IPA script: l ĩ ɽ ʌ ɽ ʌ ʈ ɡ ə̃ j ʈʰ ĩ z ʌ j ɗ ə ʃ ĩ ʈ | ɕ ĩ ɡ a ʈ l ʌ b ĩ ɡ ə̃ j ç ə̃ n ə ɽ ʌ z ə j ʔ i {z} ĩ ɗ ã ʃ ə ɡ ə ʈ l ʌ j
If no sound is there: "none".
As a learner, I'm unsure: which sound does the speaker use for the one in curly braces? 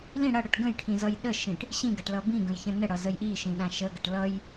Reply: ʃ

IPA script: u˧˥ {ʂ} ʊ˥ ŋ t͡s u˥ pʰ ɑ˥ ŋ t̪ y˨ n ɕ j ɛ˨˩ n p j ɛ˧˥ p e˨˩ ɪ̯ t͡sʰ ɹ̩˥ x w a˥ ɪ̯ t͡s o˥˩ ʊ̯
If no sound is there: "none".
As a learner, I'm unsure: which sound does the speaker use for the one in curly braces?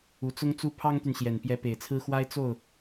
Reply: t͡s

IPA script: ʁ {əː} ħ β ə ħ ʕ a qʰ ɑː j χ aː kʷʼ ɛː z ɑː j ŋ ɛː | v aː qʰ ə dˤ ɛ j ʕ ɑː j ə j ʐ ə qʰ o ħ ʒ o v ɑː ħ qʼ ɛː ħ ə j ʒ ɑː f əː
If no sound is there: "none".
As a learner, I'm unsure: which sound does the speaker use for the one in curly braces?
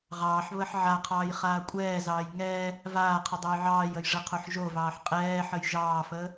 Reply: ɑː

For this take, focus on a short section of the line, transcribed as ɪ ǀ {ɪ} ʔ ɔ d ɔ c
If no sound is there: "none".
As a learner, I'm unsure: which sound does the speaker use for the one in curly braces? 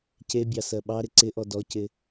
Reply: ɪ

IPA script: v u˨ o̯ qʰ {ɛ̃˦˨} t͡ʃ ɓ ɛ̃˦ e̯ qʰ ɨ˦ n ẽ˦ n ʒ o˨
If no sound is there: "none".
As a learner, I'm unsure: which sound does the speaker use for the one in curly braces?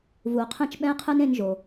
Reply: ɛ̃˦˨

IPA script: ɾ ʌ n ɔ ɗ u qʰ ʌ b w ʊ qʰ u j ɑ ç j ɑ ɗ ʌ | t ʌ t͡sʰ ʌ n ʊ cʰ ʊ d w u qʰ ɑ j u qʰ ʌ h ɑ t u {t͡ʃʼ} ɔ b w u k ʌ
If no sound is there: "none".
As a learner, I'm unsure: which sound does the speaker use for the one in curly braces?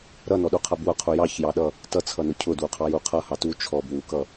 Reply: t͡ʃʰ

